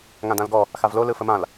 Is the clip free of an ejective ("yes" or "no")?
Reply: yes